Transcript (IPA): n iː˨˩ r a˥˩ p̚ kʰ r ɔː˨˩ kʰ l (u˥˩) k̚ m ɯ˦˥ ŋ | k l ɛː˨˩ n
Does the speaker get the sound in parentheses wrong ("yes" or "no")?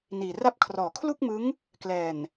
no